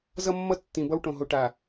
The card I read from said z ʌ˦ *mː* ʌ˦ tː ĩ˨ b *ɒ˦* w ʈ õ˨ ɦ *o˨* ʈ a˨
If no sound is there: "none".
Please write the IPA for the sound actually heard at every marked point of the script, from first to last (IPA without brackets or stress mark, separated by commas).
mː, ʌ˦, o˨